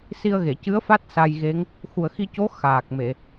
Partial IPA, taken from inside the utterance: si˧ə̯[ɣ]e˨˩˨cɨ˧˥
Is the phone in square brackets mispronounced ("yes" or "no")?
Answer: no